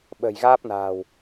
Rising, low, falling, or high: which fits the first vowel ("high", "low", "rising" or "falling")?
low